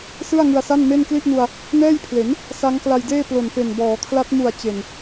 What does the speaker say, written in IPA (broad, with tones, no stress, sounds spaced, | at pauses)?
s ɯ˥˩ a̯ ŋ ɯ˧ a̯ s a˥˩ n m e˥˩ n k l i˥˩ ʔ n u˧ a̯ | n ɛː˥˩ j pʰ l e˩˦ n | s a˦˥ ŋ k l a˧ j d eː˥˩ p l o˨˩ n f e˨˩ n b ɔː˩˦ kʰ l a˦˥ t̚ m u˨˩ a̯ t͡ɕ e˨˩ n